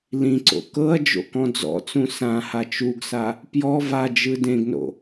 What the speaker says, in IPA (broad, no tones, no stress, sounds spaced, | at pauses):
l ĩ ǀ o̰ k ɤ ɐ̯ d͡ʒ o̰ k ɔ̃ d͡z ɔ̰ t͡s ũ s ã h a t͡ʃ u ɡ s a | p j ɔ v a d͡ʒ ɯ d ẽ ɡ n o̰